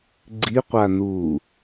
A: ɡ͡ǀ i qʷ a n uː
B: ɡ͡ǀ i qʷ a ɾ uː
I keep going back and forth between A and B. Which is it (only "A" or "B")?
A